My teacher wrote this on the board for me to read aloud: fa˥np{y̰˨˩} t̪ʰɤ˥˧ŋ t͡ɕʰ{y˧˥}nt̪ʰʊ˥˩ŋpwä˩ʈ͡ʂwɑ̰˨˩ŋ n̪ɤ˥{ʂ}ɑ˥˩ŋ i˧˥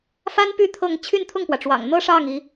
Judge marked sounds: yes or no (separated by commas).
no, no, yes